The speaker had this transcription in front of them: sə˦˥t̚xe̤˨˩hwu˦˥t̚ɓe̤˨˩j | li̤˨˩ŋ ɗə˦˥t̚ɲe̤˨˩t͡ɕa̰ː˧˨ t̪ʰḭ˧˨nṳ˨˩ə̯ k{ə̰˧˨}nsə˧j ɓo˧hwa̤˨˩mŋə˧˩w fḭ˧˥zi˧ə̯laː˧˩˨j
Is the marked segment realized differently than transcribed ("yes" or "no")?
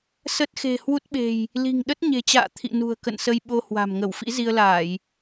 no